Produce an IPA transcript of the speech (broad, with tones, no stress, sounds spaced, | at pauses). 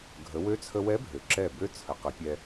ɡʱ ə˩˧ w ø˧˥ t͡sʰ ə˧ w ɛ˧˥ bʱ ø˩ ǁ ɛ˧˩ b ø˧˥ t͡sʰ ə˩˧ q ə˩˧ pʲ ɛ˧